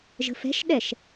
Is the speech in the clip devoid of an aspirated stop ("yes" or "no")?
yes